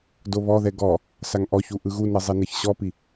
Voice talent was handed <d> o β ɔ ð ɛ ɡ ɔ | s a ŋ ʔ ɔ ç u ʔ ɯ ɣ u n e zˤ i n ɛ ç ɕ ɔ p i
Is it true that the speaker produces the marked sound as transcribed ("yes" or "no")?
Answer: yes